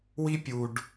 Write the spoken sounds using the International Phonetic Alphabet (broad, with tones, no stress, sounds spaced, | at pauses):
w i˦ pʲ u˨ ɖ